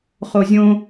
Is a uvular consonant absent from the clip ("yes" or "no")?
no